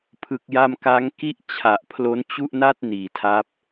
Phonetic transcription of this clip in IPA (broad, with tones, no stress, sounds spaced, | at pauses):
pʰ ɯ˦˥ k̚ j a˥˩ m k a˦˥ ŋ k i˥˩ ʔ t͡ɕʰ a˨˩ ʔ pʰ l o˦˥ n t͡ɕ u˥˩ ʔ n a˥˩ t̚ n iː˩˦ tʰ a˦˥ p̚